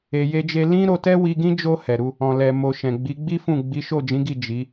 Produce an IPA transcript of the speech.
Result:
e˨ j e˧ d͡ʒ e˧ l ĩ˦ ɾ o˧ t ɛ˦ w i˧ ɡ ĩ˦ d͡ʒ o˧ h ɛ˨ ɾ u˧ | ɔ̃˨ l ɛ˨ m o˨ ʃ ɛ̃˨ ɡ͡b i˨˦ ɡ͡b i˦ f ũ˦˨ ɡ͡b i˨˦ ʃ o˦˨ d͡ʒ ĩ˨˦ ɡ i˦˨ d͡ʒ i˨˦

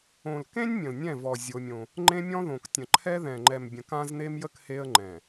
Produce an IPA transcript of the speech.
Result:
õ˨ l k ẽ˦ nʲ mʲ ə̃˨ l nʲ ɛ̃˦˨ v ɔ˨ zʲ o˦ mʲ õ˦ | ŋ͡ǃ ẽ˦ mʲ ɔ̃˦ ð õ˨ k tʲ ə̃˨ ǃʰ ɛ˦ ð ɛ̃˨ ŋ͡ǃ ɛ˨ m bʲ ə̃˨ k ã˦ z n e˦ m j ə˦ k h e˦ ə̯ ŋ͡ǃ ɛ̃˨

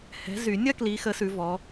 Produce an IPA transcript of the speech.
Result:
h ɛ̤˨˦ z y˨˩˦ nʲ ɐ˥ k l i˨˦ x ə˨˦ s ʉ˨˦ v ɔ˨˦

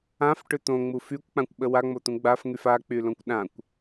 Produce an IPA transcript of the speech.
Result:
ã f ʈ ʏ t̪ õ ŋ͡m u f y kʷ k͡p ã kʷ ɓ ə w a ŋ͡m o t̪ ũ ɡ͡b a f ŋ y f a k͡p y l õ kʷ ɗ ã kʷ

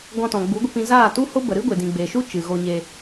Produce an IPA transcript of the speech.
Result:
ɡ ɔ̃˧ t ɔ̃˨ ɡ͡b u˨˦ ɡʷ ə˧ p ĩ˧ z aː˦˨ t u˦ h o˦ b ə˨ ɾ ɨ˦ ɡʷ e˨ d ĩ˨ ɡ͡b e˨ ʃ u˦ t͡ʃ ɨ˨ ɣ o˧ ɲ e˧

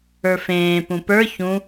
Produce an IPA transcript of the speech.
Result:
ə˞ f ẽː p ũ p ə˞ ç ũ

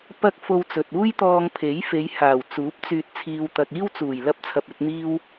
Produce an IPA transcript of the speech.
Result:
p ɐ˧ k̚ f o˧ w t͡s ɵ˨ t̚ uː˥ j t̪ ɔː˧ ŋ pʰ e˨˥ j f e˨˧ j h aː˨˩ w t͡s uː˨˥ p̚ t͡s yː˧ t̚ t͡sʰ iː˧ w t̪ ɐ˧ k̚ iː˥ w t͡s uː˨˩ j l ɐ˥ p̚ t͡sʰ ɐ˧ p̚ ɵ˨˥ t̚ n̪ iː˥ w

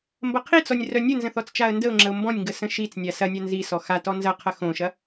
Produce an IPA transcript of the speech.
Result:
m b ɐ qʰ i t͡s ɔ nʲ r œ nʲ ə n z ə̃ θ ɔ t͡s t͡ʃ a ə̯ n d ə ʊ̯ ŋ͡ǁ ə ʊ̯ m b ɔ̃ nʲ ŋ ɡ ə s ə̃ ʃ i t͡s nʲ a s ɐ nʲ a n z i s ɔ x a t ɔ n z ɐ qʰ ɐ x õ ʃ ɐ

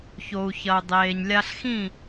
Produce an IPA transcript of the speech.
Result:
ç o˨ u̯ ç ɐ˨ u̯ dˤ eː˨ ɲ lʲ a˧ ɬ x ĩ˦˨

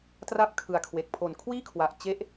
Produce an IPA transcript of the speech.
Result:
t r a˥˩ p̚ kʰ ɯ˨˩ a̯ kʰ w e˨˩ k̚ pʰ o˨˩ n kʰ w iː˥˩ kʰ w a˨˩ ʔ t͡ɕ e˦˥ ʔ

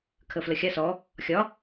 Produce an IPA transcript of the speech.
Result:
kʰ ə f l ə xʲ a s ɔ | xʲ ɒ

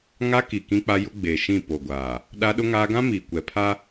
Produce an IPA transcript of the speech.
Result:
ŋ a˦ k i˨ k ĩ˦ k͡p a˦ j ʊ˦ ɡ͡b eː˨ ʃ ĩ˦˨ p o˨ ɡʷ aː˨ | ɗ a˦ ɗ ʊ˦ ŋ aː˦ ɡ ã˦ m iː˨ kʷ ɛ˨ pʰ a˦

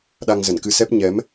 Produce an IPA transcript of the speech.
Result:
ɗ a˧ ŋ z ə˧˩ n k ɨ˧ s ɛ˦˥ p̚ ɲ ɛ˨˦ m

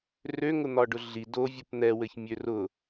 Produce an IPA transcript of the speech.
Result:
r ø ŋ ʊ n̪ ɒ ɖ ʊ ɮ i d o vʲ ʊ p n̪ ɛ w ɘ ç mʲ ø r ʊ

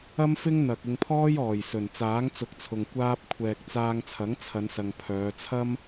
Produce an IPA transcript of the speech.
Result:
ɐ˥ m f ɪ˥ ŋ n̪ ɐ˨ k̚ ɪ˧ ŋ pʰ ɔː˥ j ɔː˨˩ j s ɵ˨˩ n t͡s aː˨˥ ŋ t͡s ʊ˨˥ k̚ t͡sʰ ʊ˨ ŋ kʷ aː˧ p̚ kʷʰ ɛː˨ k̚ t͡s aː˧ ŋ t͡sʰ ɐ˨˥ ŋ t͡sʰ ɐ˨˧ n s ɐ˨ ŋ pʰ œː˨˧ t͡sʰ ɐ˥ m

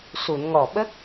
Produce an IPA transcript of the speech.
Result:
s u˨˩˨ n ŋ ɔ˨˩ ɓ ə˦˥ k̚

